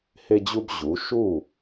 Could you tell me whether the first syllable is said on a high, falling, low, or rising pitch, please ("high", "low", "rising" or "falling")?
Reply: high